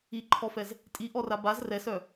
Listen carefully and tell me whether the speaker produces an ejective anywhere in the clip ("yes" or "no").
yes